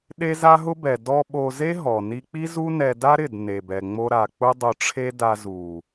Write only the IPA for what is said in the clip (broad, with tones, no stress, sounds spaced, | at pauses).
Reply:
ɗ e˦ z a˦ ɦ ʊ˦ b ɛ˨ d ɔ˧ ɓ o˧ z e˦ ɦ ɔ˨ n i˧ k͡p i˦ z u˦ n ɛ˧ d a˦ ɾ ɪ˦˨ d n e˨ b ɛ˨ ŋ͡m o˦ ɾ a˨ k͡p ʊ˦ dˤ ʊ˧ ʈ͡ʂʰ e˦ d a˧ z u˨